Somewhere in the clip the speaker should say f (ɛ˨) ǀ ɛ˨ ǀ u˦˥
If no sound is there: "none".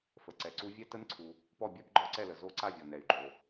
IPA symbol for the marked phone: ə˨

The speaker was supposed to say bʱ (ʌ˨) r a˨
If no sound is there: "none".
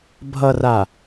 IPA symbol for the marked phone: ʌ˨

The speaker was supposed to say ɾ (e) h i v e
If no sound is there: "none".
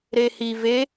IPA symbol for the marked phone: e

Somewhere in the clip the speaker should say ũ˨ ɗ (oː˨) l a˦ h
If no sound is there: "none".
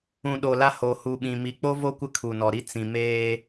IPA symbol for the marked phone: o˨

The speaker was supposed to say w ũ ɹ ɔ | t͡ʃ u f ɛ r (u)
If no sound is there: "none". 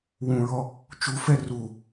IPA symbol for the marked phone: u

